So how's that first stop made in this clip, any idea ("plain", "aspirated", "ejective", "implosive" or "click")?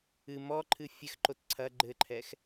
click